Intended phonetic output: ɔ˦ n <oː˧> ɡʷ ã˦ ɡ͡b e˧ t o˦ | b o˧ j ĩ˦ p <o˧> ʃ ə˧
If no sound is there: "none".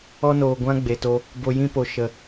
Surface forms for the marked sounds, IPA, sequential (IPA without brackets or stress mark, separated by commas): oː˧, o˧